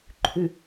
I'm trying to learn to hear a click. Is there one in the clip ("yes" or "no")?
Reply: yes